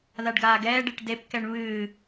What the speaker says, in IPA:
ðaɖɡaːɡɛːɖeʈ depkɛɳ βɨː

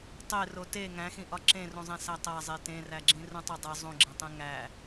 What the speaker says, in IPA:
tˤero te ŋæ̃xĩʔɒ ǁẽrũzˤẽ sætˤæzˤe tẽræɡ͡ǁĩ rũtˤodˤe zˤũɡ͡ǁẽtˤẽ ŋæ

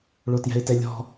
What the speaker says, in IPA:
ɭotjɛ̤ɪ̯tɛlʲɔ̤

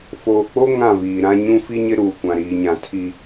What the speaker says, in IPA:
foː˨k͡po˦ ŋã˦˨viː˨ɾã˦ ɲũ˦fi˦ɲɪ˦ ɾuː˨kʷã˨ ɾiː˨ɲã˨ tʰi˦

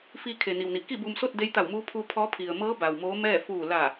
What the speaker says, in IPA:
fi˧ kʰe˩ni˩wni˩ ki˥˨bu˧mso˥˨t̚ de˧˥jt̪a˧˩wmuː˧˥ pʰu˧ pʰɔː˧˥pʰi˩ə̯ mɤː˧˥ ba˩wmoː˧˥mɛː˥˨ fuː˧˩la˧˩

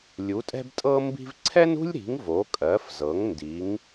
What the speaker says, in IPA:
lʲu˩˥tʼɛ̤˥btʼɤ˥mbi̤˥v ǀʰɛ˥nṳ˥lʲɾi̤˩˥ŋ vo˩˥kʼɜ˩˥fzɤ˩˥ŋ ndi˩˥ŋ

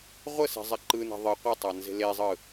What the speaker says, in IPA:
ʁʷəse̤zˤɛ ǃɯne̤ ðˤɯ qʷɯtˤɑnze̤ lezˤɯ

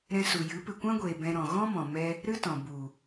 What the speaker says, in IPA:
ɾɛ̃˧su˨jɨ˨˦ pɨ˨kʷã˦ɡʷeː˨ bɛ̃˧ɾɔ̃˨ ɣɔ̃˦mɔ̃˨mɛ˧ | ɾɨ˦tɔ̃˨ bu˨

